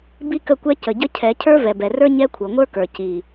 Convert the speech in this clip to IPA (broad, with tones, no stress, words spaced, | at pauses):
bi˦kə˦˨kʷɛ˦ cə˨ɟə˦cʰɛ˨˦ cʰə˞˦vɛ˨bɛ˨rə˞˦ ɲɛ˦kʷʰɤ˨ŋʷə˞˦kə˞˨ ci˨